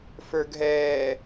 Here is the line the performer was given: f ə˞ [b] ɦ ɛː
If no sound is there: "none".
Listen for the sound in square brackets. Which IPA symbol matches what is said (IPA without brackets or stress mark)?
ɡ